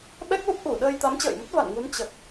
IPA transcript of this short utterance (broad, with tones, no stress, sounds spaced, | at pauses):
ɓ ɛ˦˥ k̚ l u˦˥ p̚ ʔ u˧˩ ɗ əː˧ j t̪ a˨˦ m t͡ɕ ə̰ː˧˨ j m ə˦˥ t̚ v a̰˧˨ n ŋ u˨˦ n t͡ɕ ə˨˩ t̚